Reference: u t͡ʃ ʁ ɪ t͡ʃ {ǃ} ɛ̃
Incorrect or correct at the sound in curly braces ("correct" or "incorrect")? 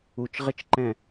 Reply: correct